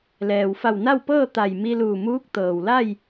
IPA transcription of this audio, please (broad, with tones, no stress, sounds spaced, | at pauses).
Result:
l ɛː˩ w f a˧˩ w n a˥˨ w p ɤː˥˨ t̪ a˧˩ j m i˧ l uː˧˩ m uː˧˥ k̚ t̪ ɤː˩ w l a˥˨ j